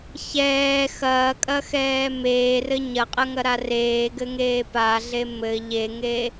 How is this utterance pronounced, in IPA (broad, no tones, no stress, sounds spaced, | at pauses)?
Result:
ç ɛː x ɐː kʼ ɐ x ɛː m eː r ɘ ɲ ɐ qʼ ɐ ŋ ɐ ɾ a r eː ɡ ɘ ŋ eː p a ɮ e m ɘ ʎ e ŋ e